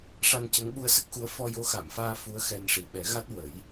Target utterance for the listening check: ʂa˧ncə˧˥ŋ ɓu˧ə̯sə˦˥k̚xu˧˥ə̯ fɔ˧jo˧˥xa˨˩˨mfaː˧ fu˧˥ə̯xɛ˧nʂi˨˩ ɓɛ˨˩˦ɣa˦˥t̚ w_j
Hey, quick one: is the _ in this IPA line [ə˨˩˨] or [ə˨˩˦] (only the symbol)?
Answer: ə˨˩˦